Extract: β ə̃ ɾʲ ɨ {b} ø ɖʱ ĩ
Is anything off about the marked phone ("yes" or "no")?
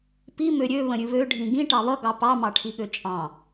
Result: yes